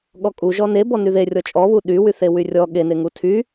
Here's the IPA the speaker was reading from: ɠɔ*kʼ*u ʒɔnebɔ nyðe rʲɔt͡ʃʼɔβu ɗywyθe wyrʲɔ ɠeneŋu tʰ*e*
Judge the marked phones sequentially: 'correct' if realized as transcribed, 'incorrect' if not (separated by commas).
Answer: correct, incorrect